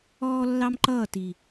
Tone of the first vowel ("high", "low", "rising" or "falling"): high